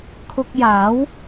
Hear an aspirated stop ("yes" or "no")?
yes